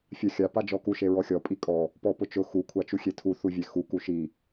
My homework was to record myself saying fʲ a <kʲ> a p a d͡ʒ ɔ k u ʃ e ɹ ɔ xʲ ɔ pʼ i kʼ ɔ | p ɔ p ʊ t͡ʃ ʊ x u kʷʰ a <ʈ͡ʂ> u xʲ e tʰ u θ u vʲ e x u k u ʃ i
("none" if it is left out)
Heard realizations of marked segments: xʲ, t͡ʃ

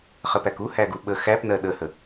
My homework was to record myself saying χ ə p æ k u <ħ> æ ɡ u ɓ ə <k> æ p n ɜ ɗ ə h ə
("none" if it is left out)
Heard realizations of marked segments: h, x

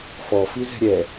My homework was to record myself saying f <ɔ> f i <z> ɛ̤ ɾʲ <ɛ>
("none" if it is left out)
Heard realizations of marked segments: ɔ, z, ɛ

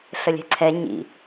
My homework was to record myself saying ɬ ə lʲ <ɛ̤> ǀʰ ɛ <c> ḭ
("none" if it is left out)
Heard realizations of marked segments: ɛ̤, ɲ

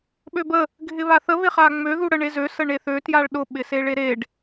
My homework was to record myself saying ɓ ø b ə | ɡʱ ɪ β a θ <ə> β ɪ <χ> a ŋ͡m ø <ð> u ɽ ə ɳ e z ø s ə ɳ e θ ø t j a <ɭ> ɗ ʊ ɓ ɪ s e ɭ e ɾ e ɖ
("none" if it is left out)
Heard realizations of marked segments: ə, χ, ð, ɭ

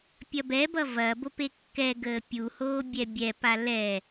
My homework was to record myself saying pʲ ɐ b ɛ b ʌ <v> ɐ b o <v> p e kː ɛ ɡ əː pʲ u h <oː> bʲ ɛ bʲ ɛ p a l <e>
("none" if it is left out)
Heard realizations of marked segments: v, none, oː, ɛ

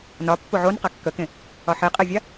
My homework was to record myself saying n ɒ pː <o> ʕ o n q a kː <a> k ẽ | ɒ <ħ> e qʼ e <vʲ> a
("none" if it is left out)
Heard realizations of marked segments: o, ə, ħ, vʲ

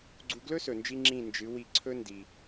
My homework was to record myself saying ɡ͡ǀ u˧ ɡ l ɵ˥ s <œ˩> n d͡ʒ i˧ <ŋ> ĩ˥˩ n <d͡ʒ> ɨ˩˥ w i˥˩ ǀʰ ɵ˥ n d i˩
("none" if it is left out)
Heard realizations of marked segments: ɵ˩, ŋ͡ǁ, d͡ʒ

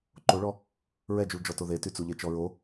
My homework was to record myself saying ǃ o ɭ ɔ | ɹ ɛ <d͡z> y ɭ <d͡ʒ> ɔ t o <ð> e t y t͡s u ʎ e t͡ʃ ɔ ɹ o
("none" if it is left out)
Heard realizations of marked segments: d͡ʒ, d͡ʒ, ð

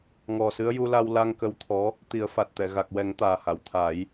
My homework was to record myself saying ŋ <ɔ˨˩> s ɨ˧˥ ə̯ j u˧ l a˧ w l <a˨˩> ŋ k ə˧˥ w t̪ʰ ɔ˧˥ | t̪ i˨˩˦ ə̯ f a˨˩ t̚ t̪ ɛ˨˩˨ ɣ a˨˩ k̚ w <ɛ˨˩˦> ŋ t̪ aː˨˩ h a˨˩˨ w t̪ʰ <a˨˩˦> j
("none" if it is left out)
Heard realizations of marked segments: ɔ˨˩, a˧, ɛ˨˩˦, a˨˩˦

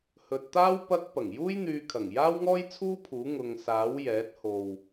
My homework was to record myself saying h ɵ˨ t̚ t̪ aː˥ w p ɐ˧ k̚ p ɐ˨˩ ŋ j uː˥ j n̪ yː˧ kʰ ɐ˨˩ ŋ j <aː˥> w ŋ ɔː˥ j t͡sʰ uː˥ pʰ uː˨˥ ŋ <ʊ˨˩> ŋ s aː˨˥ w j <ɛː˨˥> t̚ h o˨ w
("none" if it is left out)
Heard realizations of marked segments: aː˥, ʊ˨, ɛː˨˥

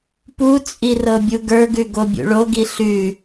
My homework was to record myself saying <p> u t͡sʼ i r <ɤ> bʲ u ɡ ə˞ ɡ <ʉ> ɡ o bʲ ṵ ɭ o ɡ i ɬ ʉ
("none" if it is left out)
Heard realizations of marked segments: p, ɤ, ʉ

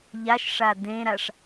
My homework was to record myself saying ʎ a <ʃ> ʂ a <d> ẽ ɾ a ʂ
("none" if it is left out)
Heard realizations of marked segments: ʃ, d

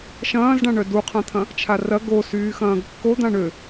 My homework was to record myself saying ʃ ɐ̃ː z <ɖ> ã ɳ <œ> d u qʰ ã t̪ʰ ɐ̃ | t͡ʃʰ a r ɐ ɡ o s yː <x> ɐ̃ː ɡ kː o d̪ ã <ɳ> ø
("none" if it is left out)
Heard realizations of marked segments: ɖ, œ, x, ɳ

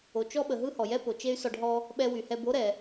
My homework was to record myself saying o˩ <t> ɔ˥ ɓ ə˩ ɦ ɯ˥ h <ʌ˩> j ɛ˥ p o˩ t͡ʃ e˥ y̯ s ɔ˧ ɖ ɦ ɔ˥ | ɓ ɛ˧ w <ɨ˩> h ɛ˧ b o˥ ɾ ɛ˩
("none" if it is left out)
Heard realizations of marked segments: t͡ʃ, ɔ˩, y˩

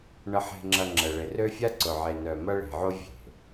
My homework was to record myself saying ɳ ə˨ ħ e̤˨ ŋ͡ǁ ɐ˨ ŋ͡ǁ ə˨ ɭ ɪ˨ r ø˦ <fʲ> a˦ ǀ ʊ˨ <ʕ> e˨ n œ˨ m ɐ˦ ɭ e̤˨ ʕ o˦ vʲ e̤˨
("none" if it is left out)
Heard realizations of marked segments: fʲ, ʕ

